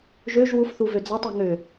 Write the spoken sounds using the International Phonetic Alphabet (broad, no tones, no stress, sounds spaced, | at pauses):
ʒ ø ʒ w u f θ u v ø d͡z a tˤ e ŋ ø